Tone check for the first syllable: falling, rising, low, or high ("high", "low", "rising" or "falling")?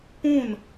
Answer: falling